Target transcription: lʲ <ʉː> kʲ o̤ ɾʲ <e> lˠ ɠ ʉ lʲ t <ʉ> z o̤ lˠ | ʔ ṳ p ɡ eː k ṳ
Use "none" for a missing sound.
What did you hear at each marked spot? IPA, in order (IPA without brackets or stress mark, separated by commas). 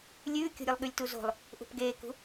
ʉː, ɨ, u